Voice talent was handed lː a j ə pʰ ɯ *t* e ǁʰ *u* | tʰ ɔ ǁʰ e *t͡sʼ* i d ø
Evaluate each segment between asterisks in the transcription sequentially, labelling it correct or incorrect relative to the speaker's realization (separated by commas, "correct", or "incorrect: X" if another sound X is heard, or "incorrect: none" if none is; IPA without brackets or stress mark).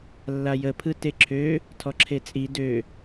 correct, incorrect: ø, correct